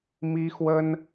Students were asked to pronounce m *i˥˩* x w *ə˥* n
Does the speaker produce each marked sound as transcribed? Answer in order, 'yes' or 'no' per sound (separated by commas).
no, yes